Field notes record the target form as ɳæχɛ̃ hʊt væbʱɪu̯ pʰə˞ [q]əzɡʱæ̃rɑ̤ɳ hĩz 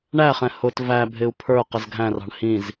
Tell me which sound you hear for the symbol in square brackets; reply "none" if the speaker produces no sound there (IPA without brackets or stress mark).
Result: q